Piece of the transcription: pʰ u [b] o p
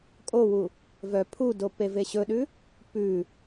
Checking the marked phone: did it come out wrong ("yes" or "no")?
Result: yes